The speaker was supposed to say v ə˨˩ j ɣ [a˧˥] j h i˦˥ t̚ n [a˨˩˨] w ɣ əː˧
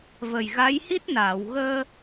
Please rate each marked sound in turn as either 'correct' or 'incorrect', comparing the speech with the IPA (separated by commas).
correct, incorrect